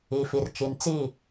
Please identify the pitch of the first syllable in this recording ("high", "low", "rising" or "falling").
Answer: low